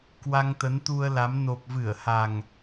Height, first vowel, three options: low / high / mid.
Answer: low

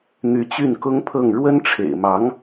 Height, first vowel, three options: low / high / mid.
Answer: high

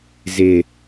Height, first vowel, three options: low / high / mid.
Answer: high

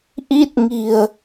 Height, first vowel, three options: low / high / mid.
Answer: high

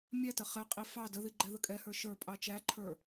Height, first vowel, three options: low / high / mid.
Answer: low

